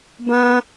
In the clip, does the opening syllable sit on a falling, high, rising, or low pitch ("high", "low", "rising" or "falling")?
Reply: high